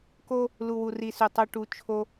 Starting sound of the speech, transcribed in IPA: k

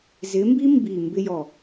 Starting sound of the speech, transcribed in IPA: z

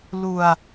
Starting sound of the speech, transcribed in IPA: l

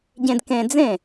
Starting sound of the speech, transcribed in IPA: ɟ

